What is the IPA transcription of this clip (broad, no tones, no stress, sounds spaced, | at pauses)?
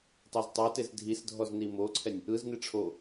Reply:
tˤ e z tˤ a t e z dʱ i s dʱ ɔ z n i m o ǀʰ ɛ nʲ | ɯ z n i ʈ͡ʂʰ o